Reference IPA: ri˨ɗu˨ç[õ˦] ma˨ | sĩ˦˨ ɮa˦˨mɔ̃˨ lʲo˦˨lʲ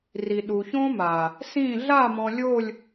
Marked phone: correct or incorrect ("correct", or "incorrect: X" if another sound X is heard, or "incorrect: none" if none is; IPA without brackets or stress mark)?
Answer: correct